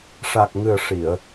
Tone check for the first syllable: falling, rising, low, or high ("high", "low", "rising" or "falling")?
low